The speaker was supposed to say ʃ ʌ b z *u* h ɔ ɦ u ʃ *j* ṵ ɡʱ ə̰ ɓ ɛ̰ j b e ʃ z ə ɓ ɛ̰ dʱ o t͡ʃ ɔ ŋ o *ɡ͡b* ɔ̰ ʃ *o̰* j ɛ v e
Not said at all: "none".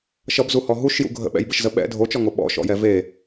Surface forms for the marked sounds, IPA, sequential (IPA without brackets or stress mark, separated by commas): u, j, ɓ, ɔ̰